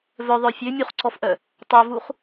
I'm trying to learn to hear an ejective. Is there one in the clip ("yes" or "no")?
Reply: no